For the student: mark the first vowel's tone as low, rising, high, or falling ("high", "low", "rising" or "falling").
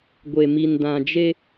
low